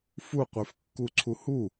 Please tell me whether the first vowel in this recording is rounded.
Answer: yes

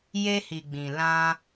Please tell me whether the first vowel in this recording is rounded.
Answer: no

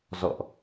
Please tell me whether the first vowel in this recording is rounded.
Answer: yes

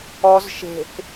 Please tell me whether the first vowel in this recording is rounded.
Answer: yes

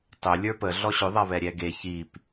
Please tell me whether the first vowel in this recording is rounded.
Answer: yes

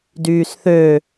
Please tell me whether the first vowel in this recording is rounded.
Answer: yes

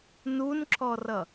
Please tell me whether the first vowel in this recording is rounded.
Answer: yes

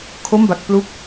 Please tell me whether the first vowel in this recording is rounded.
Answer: yes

